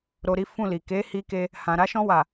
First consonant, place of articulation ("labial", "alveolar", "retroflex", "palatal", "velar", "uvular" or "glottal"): alveolar